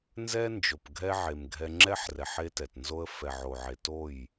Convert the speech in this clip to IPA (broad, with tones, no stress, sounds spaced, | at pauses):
n z ɛ˦ n d͡ʒ o˨ p ɡʱ ɛ˦ ʕ e˨ m ɡʱ ɛ˧ ŋ͡ǁ ɛ˦ ħ r ɛ˨ ħ e˧ t ɛ˨ t n z o˧ ə̯ f ɛ˨ ʕ o˨ ʕ e˨ t o˦˨ j